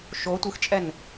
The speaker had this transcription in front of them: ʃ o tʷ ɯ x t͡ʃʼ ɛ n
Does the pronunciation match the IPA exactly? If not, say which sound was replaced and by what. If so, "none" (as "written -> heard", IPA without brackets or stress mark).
none